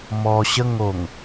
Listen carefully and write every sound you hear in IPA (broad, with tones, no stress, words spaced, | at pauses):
mɔ˧ɕə˥˧ŋo˨˩ŋ